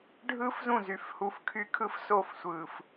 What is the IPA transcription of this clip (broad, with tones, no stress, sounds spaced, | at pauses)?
ɖʱ ɯː˦ f z ũ˦˨ z y˨ f h u˨ f kʰ y˦ kʰ ɯ˦ f s o˦˨ f sʷ ɯː˨ f